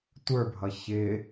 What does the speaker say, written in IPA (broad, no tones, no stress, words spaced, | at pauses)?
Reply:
tʷə˞bʱʌ çɪ